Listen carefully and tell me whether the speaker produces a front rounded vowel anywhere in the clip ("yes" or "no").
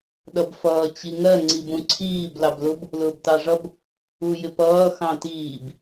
no